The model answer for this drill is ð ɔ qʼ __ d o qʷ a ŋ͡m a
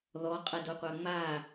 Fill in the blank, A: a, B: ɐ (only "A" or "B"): B